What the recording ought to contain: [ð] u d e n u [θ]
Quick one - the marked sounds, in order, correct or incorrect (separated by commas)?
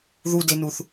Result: correct, correct